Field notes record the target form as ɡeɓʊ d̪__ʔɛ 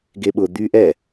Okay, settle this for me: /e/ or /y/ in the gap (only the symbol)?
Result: y